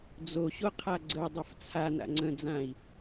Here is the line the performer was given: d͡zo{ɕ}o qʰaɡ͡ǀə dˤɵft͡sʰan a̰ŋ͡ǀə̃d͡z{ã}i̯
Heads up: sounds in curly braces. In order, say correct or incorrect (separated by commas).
correct, correct